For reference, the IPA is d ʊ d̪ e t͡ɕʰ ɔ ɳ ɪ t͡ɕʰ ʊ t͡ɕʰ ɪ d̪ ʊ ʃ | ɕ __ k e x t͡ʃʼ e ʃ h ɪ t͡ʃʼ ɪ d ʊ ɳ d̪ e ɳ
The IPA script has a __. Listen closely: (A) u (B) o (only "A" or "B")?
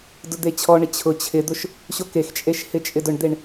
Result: B